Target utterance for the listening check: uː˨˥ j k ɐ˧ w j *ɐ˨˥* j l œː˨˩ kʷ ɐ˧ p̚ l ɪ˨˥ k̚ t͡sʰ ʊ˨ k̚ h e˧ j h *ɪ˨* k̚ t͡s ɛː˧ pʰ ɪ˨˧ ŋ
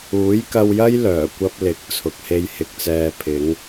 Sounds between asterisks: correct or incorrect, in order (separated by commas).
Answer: incorrect, incorrect